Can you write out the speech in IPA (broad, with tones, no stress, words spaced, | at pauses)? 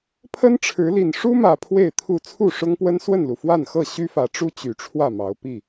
pʰə˦nʈ͡ʂʰɻ̩˨˦li˨˩n ʂu˦mä˨˩ pʰwe˥˨ɪ̯t̪ʰu˥˨ t͡sʰu˥˨ʂʊ˦ŋpwə˦n swə˥˨nlu˩ fwa˥˨nxɤ˥˨ ɕy˦fä˨˦ʈ͡ʂu˦ t͡ɕy˨˩ʈ͡ʂʰwä˥˨mɑ˨˦ʊ̯ pi˥˨